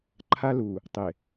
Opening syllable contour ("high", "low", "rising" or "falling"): high